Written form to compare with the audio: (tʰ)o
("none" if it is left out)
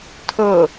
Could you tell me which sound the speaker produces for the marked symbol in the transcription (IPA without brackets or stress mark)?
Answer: tʰ